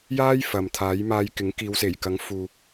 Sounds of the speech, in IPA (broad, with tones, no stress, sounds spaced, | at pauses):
j aː˥ j f ɐ˨ m t̪ʰ aː˨˥ j m aː˧ j k ɪ˨˥ ŋ k iː˨˧ w s e˨˩ j k ɐ˨˥ ŋ f uː˨